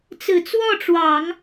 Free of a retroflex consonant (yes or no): no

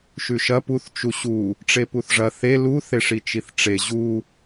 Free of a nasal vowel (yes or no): yes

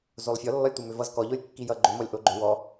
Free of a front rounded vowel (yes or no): no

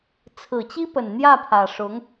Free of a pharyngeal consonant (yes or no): yes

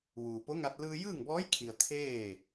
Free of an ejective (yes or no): yes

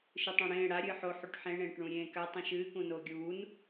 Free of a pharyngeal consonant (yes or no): no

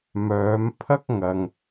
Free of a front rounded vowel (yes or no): no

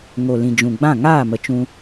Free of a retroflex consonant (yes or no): yes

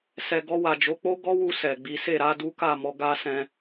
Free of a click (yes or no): yes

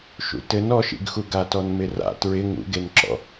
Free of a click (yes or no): no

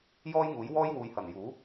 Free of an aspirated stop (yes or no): yes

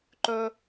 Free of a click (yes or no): no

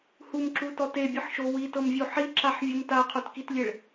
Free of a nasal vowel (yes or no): yes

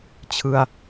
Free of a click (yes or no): yes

